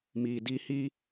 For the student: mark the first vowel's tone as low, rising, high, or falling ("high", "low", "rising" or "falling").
low